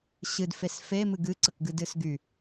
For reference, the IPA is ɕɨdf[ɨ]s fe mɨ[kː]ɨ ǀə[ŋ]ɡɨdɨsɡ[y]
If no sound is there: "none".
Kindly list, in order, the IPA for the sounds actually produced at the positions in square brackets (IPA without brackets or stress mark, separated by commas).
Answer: e, ɡ, k, y